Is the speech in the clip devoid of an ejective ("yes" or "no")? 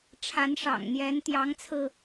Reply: yes